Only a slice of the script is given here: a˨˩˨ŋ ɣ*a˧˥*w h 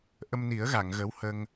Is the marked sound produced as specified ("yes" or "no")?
no